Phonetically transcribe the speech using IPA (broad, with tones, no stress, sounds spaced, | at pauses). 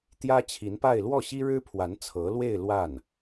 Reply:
t̪ j ä˥ t͡ɕʰ i˧˥ n p a˥˧ ɪ̯ l w ɔ˥˩ ɕ i˥ ɻ ɻ̩˥ pʰ w a˧˥ n t͡sʰ ɤ˧˥ l w e˥˧ ɪ̯ l w a˥˩ n